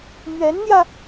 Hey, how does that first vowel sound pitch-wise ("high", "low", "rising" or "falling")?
rising